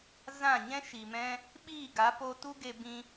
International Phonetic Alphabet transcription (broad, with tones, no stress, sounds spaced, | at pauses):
z ã˦˨ ɲ ɛ̃˦ ʃ i˨ m ɛ̃˦ | ɓ iː˦˨ ɡ a˨˦ p o˧ t u˦ ɡ e˧ b ĩ˧